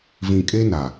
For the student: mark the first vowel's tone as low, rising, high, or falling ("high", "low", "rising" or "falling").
low